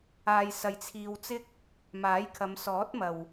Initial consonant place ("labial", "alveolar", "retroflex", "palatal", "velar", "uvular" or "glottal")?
palatal